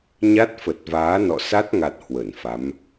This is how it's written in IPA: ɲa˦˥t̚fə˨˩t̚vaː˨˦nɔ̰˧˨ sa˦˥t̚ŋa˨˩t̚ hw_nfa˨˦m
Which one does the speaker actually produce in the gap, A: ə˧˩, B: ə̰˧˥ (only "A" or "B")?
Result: A